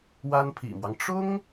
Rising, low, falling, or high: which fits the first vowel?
high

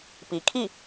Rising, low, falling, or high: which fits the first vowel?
low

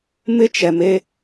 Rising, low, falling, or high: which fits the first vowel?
high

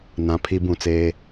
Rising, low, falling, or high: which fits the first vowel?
low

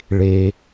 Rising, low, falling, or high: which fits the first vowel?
low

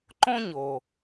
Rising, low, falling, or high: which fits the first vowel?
high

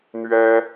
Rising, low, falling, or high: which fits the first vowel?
high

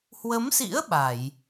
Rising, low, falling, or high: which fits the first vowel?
rising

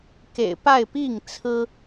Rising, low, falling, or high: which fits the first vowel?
low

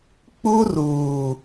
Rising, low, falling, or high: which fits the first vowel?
high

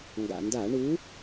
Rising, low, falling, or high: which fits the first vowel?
low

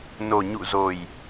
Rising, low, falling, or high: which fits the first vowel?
low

